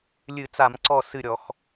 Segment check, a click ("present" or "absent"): present